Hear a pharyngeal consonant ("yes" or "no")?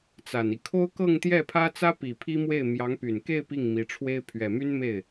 no